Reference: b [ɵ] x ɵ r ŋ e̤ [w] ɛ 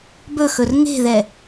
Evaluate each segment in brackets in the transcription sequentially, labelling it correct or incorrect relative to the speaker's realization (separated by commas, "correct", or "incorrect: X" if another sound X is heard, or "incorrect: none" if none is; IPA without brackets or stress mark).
correct, incorrect: ð